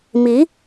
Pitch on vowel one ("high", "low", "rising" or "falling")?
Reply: rising